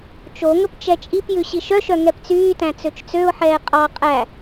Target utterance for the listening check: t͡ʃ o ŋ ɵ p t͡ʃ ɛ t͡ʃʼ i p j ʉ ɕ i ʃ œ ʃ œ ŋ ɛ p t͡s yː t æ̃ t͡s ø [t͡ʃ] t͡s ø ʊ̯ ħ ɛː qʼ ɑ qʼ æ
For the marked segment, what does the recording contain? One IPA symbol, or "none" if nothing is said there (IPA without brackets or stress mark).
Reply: t͡ʃ